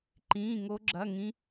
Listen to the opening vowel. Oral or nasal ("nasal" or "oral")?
nasal